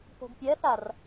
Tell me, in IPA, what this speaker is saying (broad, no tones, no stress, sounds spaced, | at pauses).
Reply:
p o̤ ɡ pʲ ɛ θ a r